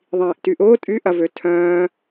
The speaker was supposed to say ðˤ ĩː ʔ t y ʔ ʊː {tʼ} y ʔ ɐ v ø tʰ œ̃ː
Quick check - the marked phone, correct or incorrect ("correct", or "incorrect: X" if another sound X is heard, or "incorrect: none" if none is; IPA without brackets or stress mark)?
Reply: correct